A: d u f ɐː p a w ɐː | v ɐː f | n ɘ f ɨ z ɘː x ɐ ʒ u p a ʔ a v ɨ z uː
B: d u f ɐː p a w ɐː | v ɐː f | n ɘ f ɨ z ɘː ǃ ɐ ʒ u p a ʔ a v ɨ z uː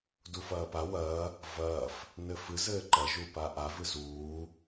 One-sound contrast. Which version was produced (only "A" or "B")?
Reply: B